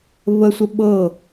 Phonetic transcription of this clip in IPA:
βəsʷə ɓɤ

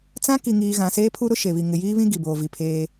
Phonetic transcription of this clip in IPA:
t͡sã˦ki˨ŋiː˨ ɣã˨seː˦pʰu˦ ɾʊ˦ʃe˨βi˨ ŋɪ˨jiː˦βĩ˦ ɡi˨boː˨vi˨pʰeː˦

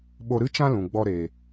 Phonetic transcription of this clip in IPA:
ɓo˧ɾɨ˦ t͡ʃã˦lũ˨ɡ͡bɔ˧ ɾeː˨

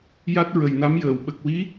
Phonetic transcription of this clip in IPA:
ja˦˥t̚ ɹə˨˩jna˧˥mjəː˨˩˨w ɓə˨˩k̚wi˧˥

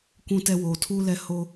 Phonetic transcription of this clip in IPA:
kʷũ˨tɛ˨ woː˨tʰuː˦lɛ˦ ho˦

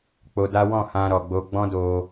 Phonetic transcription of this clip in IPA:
k͡po˧da˦ wɔ̃˦˨hã˧ɾɔ˨ ɡ͡bo˧ɡ͡bɔ̃˦do˧

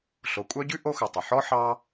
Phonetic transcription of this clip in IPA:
ɬo˩kʷʼœ˦ɟʉ˦ ʔo˦xɵ˩ tˤɵ˩ħɔ˥ ħɑ˥

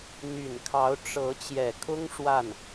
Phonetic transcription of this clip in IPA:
n̪y˨˩nkʰɑ˧˥ʊ̯ ʈ͡ʂɤ˧˥ t͡ɕjɛ˨˩kʰʊ˥ŋ ʂwa˥˩n

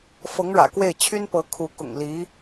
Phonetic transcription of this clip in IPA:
fɤ˧˥ŋɻä̰˨˩kwe˥˩ɪ̯ t͡ɕʰy˥n pɤ˧˥kʰu˧˥ kʊ̰˨˩ŋli˧˥

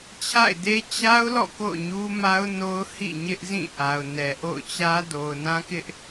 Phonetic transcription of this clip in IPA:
t͡ɕʰa̰˦˨ɪ̯de˦ t͡ɕa˦ʊ̯lɔ̰˦˨ ko̰˦˨ʊ̯ɲu˦ma˦ʊ̯ no˦ʊ̯hḭ˦˨ ɲɪ˦ʔ zĩ˦˨ʔa˨ʊ̯ nɛ˨ʔo̰˦˨ʊ̯t͡ɕä˦ do˨ʊ̯nã˦kɪ˦ʔ

